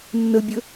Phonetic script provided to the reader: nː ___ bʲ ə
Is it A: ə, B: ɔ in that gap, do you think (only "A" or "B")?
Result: A